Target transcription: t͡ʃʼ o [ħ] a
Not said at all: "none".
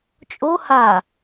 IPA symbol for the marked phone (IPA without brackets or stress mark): h